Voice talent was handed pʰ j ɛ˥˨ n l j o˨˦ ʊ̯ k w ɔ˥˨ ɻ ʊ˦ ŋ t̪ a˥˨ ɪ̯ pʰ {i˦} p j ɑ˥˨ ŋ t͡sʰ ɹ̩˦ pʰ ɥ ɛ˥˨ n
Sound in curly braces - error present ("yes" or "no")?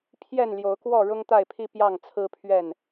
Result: no